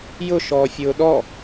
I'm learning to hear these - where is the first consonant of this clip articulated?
palate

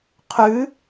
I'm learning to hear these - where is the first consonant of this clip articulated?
uvula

